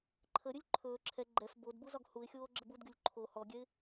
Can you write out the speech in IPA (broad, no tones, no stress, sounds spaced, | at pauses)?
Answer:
ǃʰ ə ɾʲ ɵ lʲ ǃʰ ɵː ǁʰ ɛ ɡ͡ǃ ɛ f b o d b u z ɒ ɡ h u ɪ̯ xʲ oː ɡ͡ǁ ə b u d ɡʲ u lʲ ǃʰ o h ɔ ɡʲ ɛ ɪ̯